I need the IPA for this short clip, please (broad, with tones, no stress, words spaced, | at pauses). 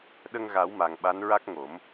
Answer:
ɗə˧ŋ ɣa˨˩˦wma˨˩ŋ ɓa˧˥nɹa˦˥k̚ŋo˨˩˦m